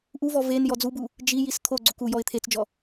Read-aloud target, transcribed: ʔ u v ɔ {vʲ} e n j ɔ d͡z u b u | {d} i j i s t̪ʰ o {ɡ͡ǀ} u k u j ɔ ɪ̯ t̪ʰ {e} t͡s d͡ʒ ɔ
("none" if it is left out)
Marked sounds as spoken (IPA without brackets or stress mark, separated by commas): v, d͡ʒ, ɡ͡ǀ, e